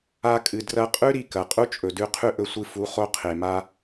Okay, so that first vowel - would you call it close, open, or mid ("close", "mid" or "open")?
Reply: open